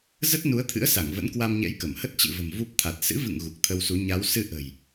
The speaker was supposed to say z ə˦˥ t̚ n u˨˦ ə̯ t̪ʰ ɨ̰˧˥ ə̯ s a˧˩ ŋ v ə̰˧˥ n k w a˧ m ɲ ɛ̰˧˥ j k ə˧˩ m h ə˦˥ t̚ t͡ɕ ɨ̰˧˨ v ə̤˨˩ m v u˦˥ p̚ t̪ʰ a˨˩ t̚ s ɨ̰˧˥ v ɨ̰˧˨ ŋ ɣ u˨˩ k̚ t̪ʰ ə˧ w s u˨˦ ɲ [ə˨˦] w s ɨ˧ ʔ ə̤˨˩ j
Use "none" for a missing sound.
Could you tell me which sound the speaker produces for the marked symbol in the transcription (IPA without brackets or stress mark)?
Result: a˨˦